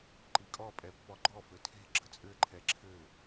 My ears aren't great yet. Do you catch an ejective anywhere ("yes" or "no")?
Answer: yes